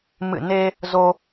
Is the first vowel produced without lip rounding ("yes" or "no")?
yes